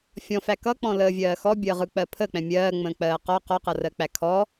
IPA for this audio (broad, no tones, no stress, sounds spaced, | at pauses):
fʲ ɔ̃ f æ k ʌ k͡p ɔ̃ l əː vʲ ɜː x ɔ bʲ əː ʁ ɯ k͡p ɜ pʰ ə k͡p ɛ̃ mʲ ɜː ŋ͡m ə̃ː k͡p ɜː q ɔ q ɔ q ʌ r ɜ k͡p æ kʰ ɔ